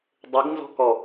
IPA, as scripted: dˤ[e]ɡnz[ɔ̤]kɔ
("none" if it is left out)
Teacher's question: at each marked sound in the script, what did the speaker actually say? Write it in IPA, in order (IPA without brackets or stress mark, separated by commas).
e, ɔ̤